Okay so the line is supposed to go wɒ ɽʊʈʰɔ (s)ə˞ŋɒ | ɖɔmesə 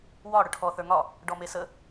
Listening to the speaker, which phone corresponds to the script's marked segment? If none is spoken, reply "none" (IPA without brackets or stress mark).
θ